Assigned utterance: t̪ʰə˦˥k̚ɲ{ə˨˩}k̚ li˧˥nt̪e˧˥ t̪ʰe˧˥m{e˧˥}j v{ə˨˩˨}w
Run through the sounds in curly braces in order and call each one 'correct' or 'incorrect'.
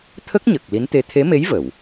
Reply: correct, correct, correct

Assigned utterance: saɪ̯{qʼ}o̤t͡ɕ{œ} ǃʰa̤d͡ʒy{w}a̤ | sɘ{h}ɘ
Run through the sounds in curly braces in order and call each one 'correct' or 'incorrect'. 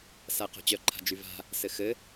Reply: incorrect, correct, incorrect, incorrect

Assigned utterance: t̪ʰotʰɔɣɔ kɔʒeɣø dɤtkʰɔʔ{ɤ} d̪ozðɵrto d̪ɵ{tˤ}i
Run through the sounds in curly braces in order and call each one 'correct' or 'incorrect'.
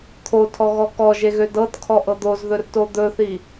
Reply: correct, incorrect

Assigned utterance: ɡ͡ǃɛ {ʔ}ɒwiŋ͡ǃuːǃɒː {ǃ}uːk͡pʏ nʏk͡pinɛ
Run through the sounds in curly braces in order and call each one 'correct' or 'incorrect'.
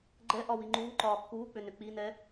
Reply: correct, incorrect

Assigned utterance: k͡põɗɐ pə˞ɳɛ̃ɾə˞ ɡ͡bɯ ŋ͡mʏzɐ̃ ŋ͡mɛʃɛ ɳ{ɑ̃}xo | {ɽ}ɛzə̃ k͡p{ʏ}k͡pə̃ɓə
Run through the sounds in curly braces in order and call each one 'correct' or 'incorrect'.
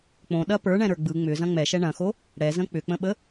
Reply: incorrect, correct, correct

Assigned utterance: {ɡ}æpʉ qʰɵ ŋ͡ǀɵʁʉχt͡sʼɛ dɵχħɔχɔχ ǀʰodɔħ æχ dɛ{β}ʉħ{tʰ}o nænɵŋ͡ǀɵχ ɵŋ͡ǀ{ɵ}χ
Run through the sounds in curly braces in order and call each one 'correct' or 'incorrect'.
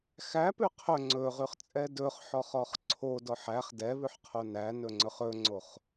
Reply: incorrect, correct, incorrect, incorrect

